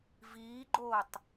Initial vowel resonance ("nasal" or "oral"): oral